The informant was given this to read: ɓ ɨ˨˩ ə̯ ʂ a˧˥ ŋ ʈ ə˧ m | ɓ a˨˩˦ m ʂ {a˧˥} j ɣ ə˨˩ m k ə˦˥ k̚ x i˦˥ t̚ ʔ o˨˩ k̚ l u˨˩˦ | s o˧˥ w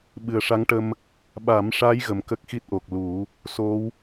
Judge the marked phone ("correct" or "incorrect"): correct